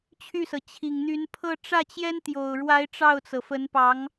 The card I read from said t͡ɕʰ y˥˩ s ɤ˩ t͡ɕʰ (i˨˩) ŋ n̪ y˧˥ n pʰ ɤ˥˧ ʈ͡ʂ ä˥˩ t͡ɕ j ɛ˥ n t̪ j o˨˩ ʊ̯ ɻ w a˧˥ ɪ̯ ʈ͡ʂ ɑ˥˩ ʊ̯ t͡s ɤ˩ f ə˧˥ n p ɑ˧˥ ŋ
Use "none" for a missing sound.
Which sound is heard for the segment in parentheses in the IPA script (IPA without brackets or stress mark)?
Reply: i˨˩